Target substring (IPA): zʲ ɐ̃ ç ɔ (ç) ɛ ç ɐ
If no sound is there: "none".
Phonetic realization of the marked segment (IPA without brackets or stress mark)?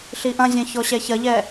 ɕ